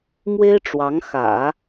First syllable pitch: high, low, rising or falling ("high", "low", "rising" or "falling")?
high